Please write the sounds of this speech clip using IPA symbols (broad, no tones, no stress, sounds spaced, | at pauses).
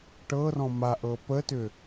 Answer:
ʈ ɤ r ɔ̃ m a ʔ ɤ p ə t ʏ